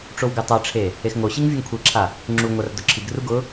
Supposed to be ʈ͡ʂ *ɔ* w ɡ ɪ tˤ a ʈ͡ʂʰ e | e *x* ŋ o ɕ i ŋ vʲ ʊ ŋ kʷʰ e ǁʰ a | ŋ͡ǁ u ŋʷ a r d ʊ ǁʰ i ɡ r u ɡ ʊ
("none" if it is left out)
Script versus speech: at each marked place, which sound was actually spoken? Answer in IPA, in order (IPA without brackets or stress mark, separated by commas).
o, x